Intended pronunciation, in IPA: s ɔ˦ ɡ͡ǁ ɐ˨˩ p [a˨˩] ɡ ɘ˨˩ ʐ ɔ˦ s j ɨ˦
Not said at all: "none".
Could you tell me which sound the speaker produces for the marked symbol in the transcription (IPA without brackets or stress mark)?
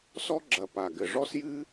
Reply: a˨˩